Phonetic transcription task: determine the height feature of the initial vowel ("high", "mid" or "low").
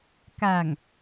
low